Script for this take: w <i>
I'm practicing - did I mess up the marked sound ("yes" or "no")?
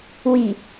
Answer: no